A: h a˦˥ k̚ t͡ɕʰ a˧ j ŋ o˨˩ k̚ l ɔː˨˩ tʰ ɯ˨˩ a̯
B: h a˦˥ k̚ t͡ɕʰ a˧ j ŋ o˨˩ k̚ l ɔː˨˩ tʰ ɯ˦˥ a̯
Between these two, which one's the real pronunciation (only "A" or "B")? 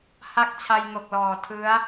B